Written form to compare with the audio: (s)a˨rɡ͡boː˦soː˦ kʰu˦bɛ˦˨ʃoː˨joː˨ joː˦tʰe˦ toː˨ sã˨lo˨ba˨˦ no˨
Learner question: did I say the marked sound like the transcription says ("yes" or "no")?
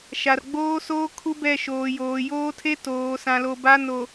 no